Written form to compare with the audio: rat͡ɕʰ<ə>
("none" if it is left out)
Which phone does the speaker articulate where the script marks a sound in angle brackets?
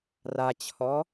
ɔ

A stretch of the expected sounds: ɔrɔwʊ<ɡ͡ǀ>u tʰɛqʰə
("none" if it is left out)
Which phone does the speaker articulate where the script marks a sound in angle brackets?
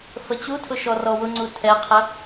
ŋ͡ǀ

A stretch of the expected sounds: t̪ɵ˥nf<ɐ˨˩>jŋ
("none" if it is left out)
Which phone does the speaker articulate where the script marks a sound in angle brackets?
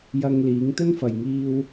ɐ˨˩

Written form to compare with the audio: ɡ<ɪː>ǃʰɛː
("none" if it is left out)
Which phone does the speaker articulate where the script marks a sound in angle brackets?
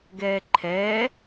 ɛː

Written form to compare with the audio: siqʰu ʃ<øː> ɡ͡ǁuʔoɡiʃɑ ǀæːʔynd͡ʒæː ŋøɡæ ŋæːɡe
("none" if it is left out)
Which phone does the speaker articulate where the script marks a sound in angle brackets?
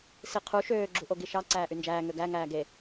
øː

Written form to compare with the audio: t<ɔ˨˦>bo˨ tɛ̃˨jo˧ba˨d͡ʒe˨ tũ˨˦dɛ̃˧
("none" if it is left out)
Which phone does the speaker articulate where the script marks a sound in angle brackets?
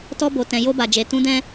ɔ˧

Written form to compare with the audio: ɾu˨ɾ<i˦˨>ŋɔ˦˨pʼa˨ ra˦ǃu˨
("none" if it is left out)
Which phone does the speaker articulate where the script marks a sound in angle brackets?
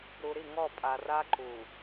i˦˨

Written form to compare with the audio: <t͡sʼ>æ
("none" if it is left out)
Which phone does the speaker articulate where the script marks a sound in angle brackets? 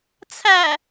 t͡sʰ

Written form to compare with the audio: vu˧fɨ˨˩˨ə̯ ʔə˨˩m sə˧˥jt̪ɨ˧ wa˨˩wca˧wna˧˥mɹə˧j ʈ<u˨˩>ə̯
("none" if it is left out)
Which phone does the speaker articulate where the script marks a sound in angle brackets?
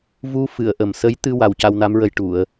u˨˩˨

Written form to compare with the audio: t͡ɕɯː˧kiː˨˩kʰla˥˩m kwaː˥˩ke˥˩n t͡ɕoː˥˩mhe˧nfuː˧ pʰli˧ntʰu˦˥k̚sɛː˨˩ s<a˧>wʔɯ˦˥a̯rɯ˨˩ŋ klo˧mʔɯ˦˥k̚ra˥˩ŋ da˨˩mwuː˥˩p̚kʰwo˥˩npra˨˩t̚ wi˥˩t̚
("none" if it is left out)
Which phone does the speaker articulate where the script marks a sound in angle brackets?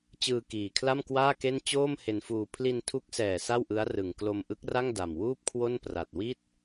a˥˩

